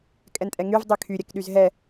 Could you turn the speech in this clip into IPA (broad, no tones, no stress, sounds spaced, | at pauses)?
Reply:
kʼ ɛ n tʼ ɛ ŋ y v dˤ y kʰ y ɾʲ ɛ k ɗ y z ɦ ɛ